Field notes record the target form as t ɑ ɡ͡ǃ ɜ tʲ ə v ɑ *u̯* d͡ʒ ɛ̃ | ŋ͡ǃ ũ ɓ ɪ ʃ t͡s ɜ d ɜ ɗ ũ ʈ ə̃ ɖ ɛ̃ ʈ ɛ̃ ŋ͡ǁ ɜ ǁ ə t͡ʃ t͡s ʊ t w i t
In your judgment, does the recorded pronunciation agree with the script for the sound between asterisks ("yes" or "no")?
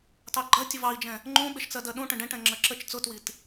no